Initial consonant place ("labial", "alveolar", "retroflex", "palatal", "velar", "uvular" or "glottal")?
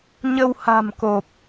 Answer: palatal